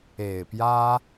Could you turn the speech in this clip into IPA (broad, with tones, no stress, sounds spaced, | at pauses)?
e˨˩ ɪ̯ p j ä˥